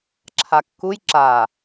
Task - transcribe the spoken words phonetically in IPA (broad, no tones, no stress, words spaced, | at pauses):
ǁʰakːuj ǁa